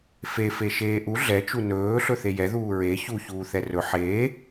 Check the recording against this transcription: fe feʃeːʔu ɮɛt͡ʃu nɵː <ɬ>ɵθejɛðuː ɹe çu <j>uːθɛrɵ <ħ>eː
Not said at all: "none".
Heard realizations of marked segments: ɬ, ç, ħ

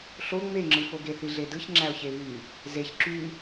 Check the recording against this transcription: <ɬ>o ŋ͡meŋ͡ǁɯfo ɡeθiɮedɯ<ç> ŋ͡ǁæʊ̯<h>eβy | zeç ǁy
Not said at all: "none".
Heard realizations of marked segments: ɬ, ç, ç

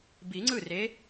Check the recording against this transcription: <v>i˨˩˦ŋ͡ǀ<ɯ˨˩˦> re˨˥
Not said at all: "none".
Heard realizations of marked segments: b, ɯ˥˩

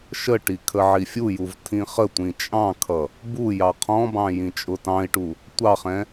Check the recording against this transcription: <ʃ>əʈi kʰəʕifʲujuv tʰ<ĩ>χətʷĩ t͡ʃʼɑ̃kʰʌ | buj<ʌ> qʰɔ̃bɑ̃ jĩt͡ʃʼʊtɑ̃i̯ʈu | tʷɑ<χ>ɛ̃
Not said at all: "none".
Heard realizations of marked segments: ʃ, ĩ, ɑ, χ

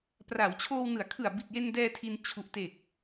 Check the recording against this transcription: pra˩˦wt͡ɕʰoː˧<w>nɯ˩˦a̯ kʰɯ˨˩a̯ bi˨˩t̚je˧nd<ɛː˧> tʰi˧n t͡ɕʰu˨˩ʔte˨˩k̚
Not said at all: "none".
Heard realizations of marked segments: w, ɛː˧

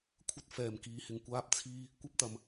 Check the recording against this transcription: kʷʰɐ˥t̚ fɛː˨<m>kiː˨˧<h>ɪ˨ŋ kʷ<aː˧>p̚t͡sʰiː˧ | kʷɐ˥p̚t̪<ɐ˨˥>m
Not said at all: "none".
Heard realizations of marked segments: m, h, aː˧, ɐ˨

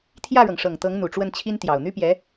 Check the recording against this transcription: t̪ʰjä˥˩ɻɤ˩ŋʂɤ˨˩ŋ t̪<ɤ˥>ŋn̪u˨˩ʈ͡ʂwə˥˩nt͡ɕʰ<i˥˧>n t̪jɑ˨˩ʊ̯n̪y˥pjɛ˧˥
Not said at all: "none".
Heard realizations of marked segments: ɤ˧˥, i˥

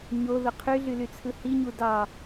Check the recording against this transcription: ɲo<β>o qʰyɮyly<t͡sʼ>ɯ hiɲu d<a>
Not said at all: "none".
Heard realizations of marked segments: ð, t͡sʰ, ɑ

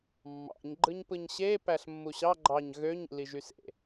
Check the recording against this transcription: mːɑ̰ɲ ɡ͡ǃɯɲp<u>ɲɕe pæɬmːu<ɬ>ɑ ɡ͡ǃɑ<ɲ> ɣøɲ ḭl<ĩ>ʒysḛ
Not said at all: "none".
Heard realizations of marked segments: ɯ, ɕ, ɲ, i

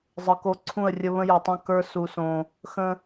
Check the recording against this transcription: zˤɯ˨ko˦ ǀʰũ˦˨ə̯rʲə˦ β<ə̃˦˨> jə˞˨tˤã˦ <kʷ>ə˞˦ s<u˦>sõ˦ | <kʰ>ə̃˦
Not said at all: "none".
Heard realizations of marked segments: ə̃˦, k, u˦, x

